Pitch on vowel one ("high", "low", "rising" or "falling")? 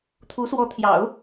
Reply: rising